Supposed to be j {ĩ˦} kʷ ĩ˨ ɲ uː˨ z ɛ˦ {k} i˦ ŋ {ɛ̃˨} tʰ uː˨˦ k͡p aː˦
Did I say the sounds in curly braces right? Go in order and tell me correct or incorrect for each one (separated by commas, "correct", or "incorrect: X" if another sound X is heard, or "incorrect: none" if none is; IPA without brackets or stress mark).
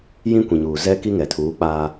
correct, correct, incorrect: ɛ˨